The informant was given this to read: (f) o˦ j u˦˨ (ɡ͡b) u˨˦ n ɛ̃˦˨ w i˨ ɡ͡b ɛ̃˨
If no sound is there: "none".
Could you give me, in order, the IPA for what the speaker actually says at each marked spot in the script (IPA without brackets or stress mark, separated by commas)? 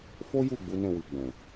f, ɡ͡b